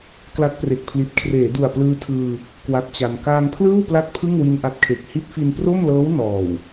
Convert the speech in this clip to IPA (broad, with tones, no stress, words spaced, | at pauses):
kla˦˥t̚pre˨˩k̚pʰli˨˩t̚ kʰreː˩˦du˨˩a̯plɯː˧ tʰɯː˧ | kwa˦˥t̚t͡ɕa˧n kaː˧ŋpʰlɯː˥˩wpla˦˥t̚ pʰɯ˥˩ŋwi˧n ʔa˦˥t̚kʰe˨˩k̚ hi˦˥t̚fi˧npro˥˩mlɤː˦˥w nɔː˨˩w